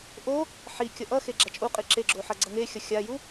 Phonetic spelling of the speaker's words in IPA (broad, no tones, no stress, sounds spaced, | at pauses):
ʔ o | ħ i kʲ ʌ ʔ ʌ x e ɡ͡ǁ a t͡ʃʼ u qʼ i ǁ e ɡ͡ǁ o ħ ʌ ɡ͡ǀ ʌ ŋ e xʲ ʌ xʲ a j u